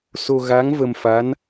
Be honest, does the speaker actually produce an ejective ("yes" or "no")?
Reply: no